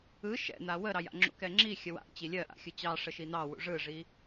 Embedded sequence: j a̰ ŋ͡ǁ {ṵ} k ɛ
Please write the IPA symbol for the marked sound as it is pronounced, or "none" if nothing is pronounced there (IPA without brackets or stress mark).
ṵ